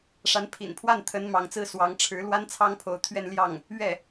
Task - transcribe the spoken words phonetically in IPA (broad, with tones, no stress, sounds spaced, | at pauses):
ʂ a˧˥ n pʰ ḭ˨˩ n pʰ w a˥˩ n t̪ʰ ə˧˥ n m ɑ˧˥ ŋ t͡s ɹ̩˥ s w ɑ˧˥ ŋ ʈ͡ʂʰ ɻ̩˧˥ l w a˥ n t͡sʰ ɑ˥ ŋ pʰ o˧˥ ʊ̯ t̪ʰ ɥ ɛ˥˧ n l j ɑ˥˩ ŋ | ɥ ɛ˥˩